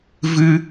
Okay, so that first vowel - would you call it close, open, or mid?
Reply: close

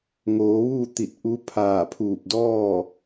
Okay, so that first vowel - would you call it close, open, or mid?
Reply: mid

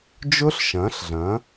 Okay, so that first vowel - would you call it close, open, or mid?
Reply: close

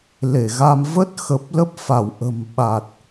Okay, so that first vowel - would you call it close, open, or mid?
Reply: mid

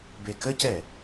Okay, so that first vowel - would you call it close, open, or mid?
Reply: mid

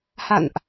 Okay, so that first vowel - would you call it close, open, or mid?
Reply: open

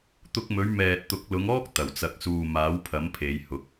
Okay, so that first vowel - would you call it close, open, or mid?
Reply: close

